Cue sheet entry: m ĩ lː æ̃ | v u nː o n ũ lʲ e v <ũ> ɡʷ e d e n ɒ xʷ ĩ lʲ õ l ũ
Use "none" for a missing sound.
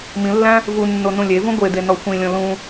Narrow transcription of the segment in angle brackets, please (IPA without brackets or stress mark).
ũ